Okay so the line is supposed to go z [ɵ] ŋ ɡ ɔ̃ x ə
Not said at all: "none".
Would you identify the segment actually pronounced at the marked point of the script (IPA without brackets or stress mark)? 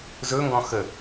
ɵ